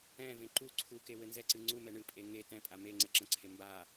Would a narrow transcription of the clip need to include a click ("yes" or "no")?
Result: yes